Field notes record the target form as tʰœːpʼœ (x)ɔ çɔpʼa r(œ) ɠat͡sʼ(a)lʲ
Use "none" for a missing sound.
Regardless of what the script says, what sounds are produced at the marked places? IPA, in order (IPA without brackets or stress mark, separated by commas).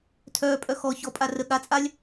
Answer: x, ə, a